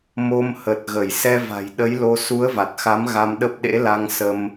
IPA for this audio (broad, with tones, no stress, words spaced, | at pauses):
mo˧mhə˨˩t̚ɣə˧˩j sɛ˧va̤˨˩jɗə˨˦jlo˧ su˨˦ə̯va˨˩t̚xa˨˦m ɣa˧mɗə˦˥p̚ ɗḛ˧˥la˧ŋ sə˧m